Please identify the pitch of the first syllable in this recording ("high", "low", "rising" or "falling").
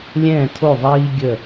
falling